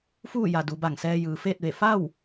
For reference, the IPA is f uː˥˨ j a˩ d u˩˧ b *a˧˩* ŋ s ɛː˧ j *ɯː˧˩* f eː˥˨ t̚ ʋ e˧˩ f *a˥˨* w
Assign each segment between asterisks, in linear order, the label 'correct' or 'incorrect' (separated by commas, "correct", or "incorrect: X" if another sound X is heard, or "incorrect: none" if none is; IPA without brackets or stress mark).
correct, incorrect: ɯː˩, correct